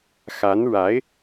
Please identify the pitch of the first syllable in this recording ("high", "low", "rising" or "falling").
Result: rising